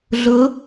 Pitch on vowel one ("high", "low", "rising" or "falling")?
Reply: rising